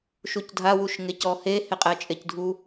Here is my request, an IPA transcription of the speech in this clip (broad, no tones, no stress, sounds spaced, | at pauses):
ʃ u c dʱ a w u ʃ ŋ e c ɔ h e h e qʼ ɛ t͡ʃʼ e c dʱ u